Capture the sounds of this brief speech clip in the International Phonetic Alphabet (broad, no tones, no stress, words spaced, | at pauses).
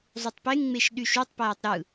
zˤutˤpeŋŋ͡meʃ ɗyʃutˤpæːtˤ ɾɯ